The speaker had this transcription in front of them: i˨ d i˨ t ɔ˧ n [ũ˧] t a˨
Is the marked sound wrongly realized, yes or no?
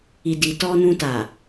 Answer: no